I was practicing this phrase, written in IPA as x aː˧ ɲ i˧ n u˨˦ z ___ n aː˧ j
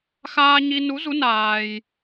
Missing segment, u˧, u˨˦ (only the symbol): u˨˦